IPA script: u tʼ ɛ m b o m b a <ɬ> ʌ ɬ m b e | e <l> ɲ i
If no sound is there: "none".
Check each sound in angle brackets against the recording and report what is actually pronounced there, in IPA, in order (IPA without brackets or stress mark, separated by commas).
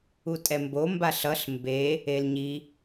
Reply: ɬ, l